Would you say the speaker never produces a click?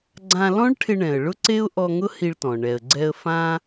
no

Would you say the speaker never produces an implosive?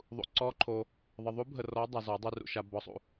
yes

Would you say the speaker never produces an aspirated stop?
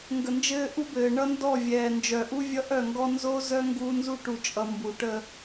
yes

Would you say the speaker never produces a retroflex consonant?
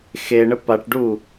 no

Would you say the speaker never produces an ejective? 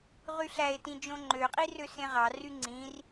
no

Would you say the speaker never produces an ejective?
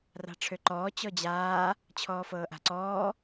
yes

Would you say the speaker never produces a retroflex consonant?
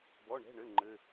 no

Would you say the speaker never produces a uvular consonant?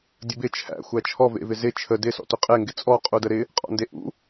no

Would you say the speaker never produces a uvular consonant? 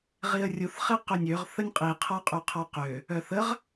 no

